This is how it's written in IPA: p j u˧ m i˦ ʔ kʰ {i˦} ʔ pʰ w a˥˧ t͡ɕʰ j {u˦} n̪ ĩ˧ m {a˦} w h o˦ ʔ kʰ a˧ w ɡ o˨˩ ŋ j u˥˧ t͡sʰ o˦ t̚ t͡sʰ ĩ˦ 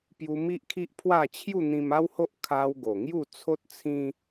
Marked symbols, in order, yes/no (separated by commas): yes, no, yes